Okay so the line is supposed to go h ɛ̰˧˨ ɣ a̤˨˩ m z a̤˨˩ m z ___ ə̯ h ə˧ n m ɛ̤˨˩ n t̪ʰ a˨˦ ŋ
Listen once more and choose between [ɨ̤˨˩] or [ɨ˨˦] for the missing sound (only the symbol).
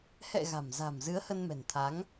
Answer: ɨ˨˦